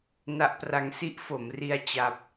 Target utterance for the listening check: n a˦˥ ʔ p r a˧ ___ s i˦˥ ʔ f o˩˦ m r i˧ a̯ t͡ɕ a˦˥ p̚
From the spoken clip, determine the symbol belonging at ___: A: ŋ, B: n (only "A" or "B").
A